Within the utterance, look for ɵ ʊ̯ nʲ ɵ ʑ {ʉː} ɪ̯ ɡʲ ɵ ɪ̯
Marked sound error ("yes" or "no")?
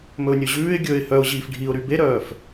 no